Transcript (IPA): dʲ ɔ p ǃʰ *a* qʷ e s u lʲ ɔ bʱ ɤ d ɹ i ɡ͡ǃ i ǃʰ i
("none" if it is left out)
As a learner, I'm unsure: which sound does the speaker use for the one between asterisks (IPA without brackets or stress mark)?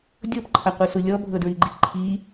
a